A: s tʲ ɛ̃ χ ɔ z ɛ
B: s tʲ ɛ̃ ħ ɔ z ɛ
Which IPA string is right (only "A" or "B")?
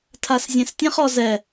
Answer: A